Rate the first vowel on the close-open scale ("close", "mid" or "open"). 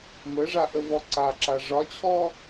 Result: mid